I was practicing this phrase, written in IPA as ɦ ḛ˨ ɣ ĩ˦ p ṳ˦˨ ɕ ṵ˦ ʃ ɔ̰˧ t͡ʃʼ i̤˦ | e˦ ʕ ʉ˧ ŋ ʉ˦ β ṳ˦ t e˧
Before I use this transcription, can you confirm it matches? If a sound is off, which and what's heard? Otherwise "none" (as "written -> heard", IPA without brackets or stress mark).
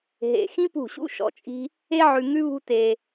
ɣ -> x